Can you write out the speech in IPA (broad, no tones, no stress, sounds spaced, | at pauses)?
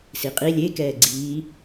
s i qʼ i lʲ e k ɛː ɡ͡ǀ iː